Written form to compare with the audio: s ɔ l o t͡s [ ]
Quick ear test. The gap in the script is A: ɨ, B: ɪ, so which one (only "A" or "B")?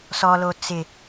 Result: B